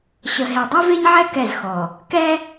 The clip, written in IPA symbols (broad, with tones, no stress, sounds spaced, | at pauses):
ɕ ə˨ ɦ e˨ dˤ e˦ v e˦ ɲ ʕ ɛ˦ k ɛ˦˨ z x ɔ˨ | k ɛ˦